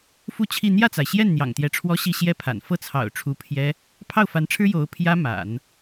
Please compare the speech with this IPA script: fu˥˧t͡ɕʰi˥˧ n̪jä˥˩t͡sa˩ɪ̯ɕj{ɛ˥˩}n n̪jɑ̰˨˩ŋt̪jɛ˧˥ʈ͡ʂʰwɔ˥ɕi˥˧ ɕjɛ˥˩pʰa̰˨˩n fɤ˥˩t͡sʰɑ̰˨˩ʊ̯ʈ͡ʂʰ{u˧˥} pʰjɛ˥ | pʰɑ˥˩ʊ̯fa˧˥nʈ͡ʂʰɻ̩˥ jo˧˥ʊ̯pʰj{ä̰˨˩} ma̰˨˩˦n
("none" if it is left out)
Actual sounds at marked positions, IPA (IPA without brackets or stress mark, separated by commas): ɛ˥˩, u˧˥, ä˥